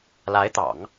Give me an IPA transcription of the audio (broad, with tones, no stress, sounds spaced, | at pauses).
l a˧˥ ɪ̯ t̪ ɑ̰˨˩˦ ŋ